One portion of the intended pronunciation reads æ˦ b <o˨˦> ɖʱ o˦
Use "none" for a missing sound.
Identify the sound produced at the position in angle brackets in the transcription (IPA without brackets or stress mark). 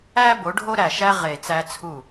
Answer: o˨˦